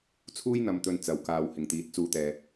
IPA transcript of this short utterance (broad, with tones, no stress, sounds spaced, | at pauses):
t͡sʰ uː˥ j n̪ ɐ˨˧ m t̪ ɵ˨ n t͡s ɐ˨˩ w k aː˨ w h ɪ˨˩ ŋ t̪ iː˨ t̚ t͡s uː˧ t̪ ɛː˨